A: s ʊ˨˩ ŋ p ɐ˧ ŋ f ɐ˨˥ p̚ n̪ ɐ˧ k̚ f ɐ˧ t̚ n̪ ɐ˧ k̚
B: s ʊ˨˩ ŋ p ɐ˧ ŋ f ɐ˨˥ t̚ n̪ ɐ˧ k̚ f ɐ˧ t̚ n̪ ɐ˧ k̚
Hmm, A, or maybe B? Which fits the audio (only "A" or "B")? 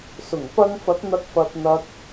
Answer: B